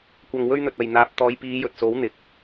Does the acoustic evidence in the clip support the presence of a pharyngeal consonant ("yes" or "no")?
no